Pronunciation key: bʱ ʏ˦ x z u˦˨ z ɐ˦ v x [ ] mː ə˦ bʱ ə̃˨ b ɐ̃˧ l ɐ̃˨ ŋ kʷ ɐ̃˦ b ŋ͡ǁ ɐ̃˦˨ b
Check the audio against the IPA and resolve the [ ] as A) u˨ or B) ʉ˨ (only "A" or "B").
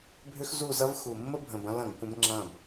A